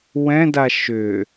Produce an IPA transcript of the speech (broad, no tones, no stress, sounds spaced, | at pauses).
w ɛ̃ d a ʃ ʏ